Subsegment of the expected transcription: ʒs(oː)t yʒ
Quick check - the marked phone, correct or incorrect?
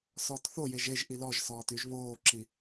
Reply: incorrect